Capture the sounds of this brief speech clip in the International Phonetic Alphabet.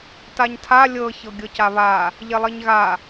taɲtʰa lʲɤ çɤɡʲɤcaβa | ʎelˠiɲɣa

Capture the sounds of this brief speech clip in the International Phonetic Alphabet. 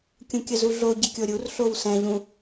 kʲũkʲəzuɮo ɟəkʲoɾʲur ɬowsɛ̃ ʎũ

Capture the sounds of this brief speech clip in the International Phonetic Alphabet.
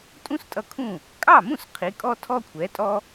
tʼũ˥stʼʌ˧kʰũ˥˩ | kʼɑ˥˩mũ˥˩s qʰi˩˥kʼɔ˥ tʰɔ˥kʷʰɛ˩˥tʼɔ˥

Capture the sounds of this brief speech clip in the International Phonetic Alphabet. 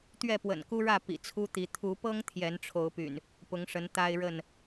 t̪ɥɛ˥˨pwə̰˨˩nku˦ɻä˥˨ pḭ˨˩t͡sʰu˦t̪i˨˦ t̪ʰu˨˦pɤ˦ŋ t̪ʰjɛ˨˦nʈ͡ʂʰo˨˦ʊ̯py̰˨˩n | pʊ˨˦ŋʂə˨˦n t̪a˦ɪ̯ɻə˥˨n

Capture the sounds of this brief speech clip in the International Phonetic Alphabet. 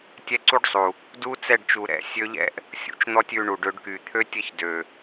tʲɛ˦ǀu˦ɖsˤu˨ | du˦t͡sɛ˦˨ɖt͡ʃu˨ ɾɛ̰˦ sʲø˧ʎɛ̰˦ʔ | sʲṵ˧t͡ʃn̪ɔ˦tʲ ʉ˧ ɳu˨ɖø˧ɖ ky˨ t̪ʰø˦tʲə˦˨çdø˨

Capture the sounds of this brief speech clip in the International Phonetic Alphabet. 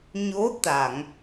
ɲo˧˥ t̪a˨˩˨ŋ

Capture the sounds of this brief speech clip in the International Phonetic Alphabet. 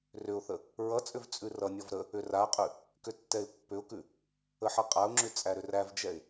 rʏʊ̯θə | ɹʌt͡sʼʏv t͡sʼʉrʌnʲɔv ɾə | ʏraqʼʉ | kʏtːɛɪ̯pːʏʊ̯kʉ | əħʌqʼaʊ̯ŋ͡ǁʉ t͡sʼæɾʏrævd͡ʒɛɪ̯

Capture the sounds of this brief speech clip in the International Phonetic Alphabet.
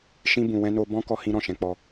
ʃĩ˦ bũ˧wɛ̃˦ no˦ bɔ̃˦ kɔ˦hĩ˦ɾɔ̃˦˨ʃɛ̃˧ k͡pɔ˧

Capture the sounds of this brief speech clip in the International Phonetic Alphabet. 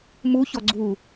muçɔ ɡ͡ǀu

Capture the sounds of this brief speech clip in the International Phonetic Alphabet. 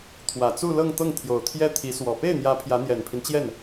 t̪ʰwä˨˩t͡su˥˧ lɤ˥˧ŋt̪ɤ˥˩ŋ t̪ʰjo˨˩ʊ̯t̪ʰjɛ˥ t̪ʰi˧˥swɔ˨˩ pe˥˩ɪ̯n̪jä˧˥ pʰjä˧˥n̪jɛ˨˩npʰi˦nt͡ɕjɛ˥˩n

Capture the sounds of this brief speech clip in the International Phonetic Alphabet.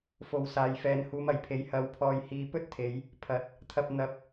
fo˨wsaː˨jfɛː˨n huː˨˧mɐ˨˩jpʰe˨˥j hɐ˨˥w pʰɔː˨jhiː˨ pɵ˥t̚t̪ʰe˨˧j | pʰɐ˨˥t̚ | t̪ʰɐ˧p̚ n̪ɐ˨p̚

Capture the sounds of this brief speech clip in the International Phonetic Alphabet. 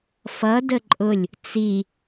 fʌdə ǃʼʊlʲ | t͡si

